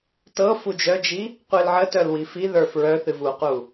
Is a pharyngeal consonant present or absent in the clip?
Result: present